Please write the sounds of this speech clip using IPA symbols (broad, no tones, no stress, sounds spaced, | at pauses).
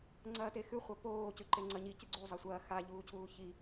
ŋ͡ǀ ɐː t e x ʉ χʷ ɐ p oː c ʉ ǃ e ŋ͡ǀ ɐ ɲ i c ɨ ɡ͡ǀ u zˤ ɐ sʷ ɐː x a ʎ uː cʰ uː ç i